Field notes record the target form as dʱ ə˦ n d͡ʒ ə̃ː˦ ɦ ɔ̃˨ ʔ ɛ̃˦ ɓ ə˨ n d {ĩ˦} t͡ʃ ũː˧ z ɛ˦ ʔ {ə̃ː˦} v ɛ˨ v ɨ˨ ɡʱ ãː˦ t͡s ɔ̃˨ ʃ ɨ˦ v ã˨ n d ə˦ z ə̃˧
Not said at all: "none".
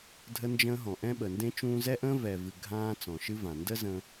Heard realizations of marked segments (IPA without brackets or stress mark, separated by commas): ẽ˦, ə̃ː˦